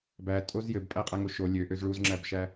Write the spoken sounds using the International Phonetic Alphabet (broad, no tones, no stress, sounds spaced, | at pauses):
b æ tʼ o z j ɘ b pʼ æ qʼ æ ŋ o ʃ o lʲ ø ʔ ø z ɭ u z ŋ͡ǁ æ b ʃ æ